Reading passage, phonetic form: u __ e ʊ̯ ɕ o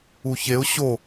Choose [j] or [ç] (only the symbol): ç